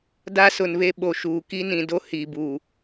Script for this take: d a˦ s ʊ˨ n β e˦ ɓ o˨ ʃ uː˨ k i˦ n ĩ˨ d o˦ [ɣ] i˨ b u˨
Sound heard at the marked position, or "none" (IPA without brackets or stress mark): h